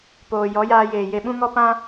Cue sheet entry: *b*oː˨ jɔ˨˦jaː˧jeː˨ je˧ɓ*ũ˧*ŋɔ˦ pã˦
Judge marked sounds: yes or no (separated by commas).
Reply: no, no